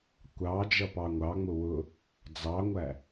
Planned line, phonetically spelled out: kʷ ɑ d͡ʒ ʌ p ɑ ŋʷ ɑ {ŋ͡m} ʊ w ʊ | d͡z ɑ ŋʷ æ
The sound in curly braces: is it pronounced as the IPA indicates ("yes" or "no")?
yes